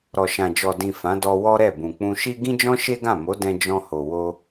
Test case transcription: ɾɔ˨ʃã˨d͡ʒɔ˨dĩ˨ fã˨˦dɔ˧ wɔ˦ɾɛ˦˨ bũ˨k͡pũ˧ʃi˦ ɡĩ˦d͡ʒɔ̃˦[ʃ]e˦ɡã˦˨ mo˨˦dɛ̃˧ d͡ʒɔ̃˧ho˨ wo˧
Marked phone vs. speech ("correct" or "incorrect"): correct